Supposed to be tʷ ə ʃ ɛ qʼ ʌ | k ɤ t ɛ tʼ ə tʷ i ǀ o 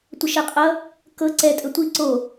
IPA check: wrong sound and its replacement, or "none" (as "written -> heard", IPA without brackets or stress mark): t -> ǀ